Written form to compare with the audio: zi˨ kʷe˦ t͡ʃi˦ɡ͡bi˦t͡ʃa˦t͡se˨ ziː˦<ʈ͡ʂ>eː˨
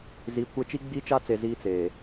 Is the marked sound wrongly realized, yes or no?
yes